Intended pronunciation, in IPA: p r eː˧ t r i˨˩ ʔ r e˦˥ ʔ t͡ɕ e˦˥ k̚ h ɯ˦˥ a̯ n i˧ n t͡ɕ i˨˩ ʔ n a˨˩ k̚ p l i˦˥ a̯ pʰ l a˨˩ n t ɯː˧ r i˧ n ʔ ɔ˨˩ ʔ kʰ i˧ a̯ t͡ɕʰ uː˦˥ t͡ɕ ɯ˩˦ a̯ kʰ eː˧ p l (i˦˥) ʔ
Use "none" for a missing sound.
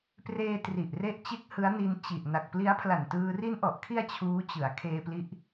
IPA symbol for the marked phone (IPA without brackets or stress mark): i˦˥